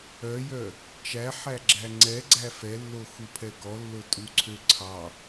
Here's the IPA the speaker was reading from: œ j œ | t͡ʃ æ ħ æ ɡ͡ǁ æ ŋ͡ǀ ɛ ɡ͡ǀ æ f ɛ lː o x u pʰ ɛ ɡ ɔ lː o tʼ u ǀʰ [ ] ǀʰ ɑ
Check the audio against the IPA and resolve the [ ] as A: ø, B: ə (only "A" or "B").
A